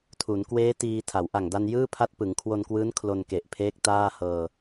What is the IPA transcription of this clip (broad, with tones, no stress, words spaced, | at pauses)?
tʰu˩˦nkweː˦˥ tiː˧ tʰa˩˦wʔa˨˩ŋda˧n jɯː˥˩pʰa˦˥t̚ pɯ˩˦ŋkʰwo˧nkwɯː˦˥n kʰlo˧nke˨˩ʔpʰeː˦˥k̚ taː˥˩hɤː˧